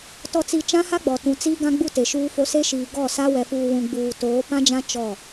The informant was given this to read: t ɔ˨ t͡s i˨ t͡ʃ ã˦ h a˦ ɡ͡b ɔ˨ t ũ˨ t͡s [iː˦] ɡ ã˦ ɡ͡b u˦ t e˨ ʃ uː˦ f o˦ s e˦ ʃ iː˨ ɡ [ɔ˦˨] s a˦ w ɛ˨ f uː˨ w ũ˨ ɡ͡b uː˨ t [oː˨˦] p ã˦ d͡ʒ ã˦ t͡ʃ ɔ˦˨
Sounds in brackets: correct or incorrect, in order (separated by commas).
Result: correct, correct, correct